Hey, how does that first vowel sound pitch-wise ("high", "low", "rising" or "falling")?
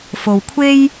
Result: low